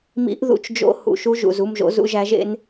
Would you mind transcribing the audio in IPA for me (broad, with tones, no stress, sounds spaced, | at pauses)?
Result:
m ḭ˧˥ ʔ ð ṵ˧ t͡ʃ d͡ʒ o̰˧˥ h ṵ˩ ʃ u˧ ʒ ṵ˩ z u˥˨ m ʒ o̰˧˥ z ṵ˧ ʒ æ˧˥ ʒ ḛ˧˥ n